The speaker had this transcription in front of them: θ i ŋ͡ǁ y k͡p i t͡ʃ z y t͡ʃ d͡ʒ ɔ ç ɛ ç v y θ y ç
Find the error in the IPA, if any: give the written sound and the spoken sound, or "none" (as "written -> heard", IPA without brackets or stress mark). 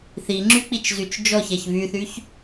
none